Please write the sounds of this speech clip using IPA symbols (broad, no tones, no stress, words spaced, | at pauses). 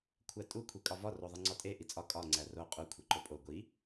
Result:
kʷʰætʼu kʷʰikʼɒvɒ roðˤiŋ͡ǀɒtʼe ʔit͡sʼɒ kʼɒ ŋ͡ǀæro qʼu kʷʰeǃopʼo ɡʷi